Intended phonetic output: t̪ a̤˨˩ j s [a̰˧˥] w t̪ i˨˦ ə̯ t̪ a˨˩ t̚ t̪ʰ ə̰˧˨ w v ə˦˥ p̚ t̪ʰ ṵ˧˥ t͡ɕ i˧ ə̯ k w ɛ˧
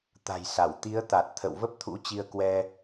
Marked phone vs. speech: incorrect: a˧˩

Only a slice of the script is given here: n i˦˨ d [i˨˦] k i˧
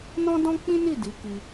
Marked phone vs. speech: correct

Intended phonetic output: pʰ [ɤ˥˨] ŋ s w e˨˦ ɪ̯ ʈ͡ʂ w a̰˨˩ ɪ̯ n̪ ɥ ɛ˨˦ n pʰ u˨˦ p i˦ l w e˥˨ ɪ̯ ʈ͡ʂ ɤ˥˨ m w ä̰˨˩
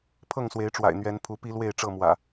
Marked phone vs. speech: correct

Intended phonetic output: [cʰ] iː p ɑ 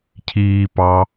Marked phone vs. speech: correct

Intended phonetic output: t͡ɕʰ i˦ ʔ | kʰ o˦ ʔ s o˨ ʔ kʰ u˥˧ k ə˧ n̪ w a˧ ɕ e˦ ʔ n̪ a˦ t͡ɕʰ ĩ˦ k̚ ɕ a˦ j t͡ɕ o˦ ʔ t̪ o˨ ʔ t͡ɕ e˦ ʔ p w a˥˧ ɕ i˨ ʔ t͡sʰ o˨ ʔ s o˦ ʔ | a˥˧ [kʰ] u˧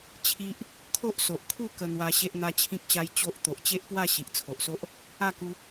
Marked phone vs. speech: incorrect: k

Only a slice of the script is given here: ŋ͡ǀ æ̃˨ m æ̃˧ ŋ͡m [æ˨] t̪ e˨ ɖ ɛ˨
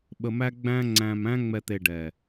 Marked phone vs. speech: incorrect: ɛ˨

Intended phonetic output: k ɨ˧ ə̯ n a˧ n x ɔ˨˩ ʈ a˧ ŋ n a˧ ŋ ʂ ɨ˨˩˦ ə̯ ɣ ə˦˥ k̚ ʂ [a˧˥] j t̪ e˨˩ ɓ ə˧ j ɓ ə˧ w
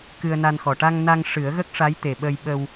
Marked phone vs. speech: correct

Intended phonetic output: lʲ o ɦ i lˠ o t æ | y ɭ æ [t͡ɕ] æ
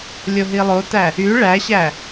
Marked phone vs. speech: incorrect: ɕ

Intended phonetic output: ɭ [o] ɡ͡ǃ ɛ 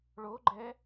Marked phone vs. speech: correct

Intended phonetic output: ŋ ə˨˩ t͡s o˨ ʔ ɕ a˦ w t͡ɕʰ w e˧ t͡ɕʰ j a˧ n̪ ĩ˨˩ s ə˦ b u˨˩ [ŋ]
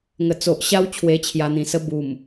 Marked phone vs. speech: incorrect: m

